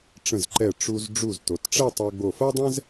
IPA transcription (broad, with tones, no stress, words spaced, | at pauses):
ʈ͡ʂə̃˧˩zǃɛ˧˩ ʈ͡ʂu˧z ɖ͡ʐu˧˩zto˩˧tʈ͡ʂɛ˥˧ tˤɤ˧ɡ͡bo˧˩fɤ˥dˤɛ̃˥z